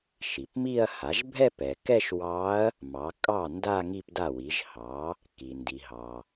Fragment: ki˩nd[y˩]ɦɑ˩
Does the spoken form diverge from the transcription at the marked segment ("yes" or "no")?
yes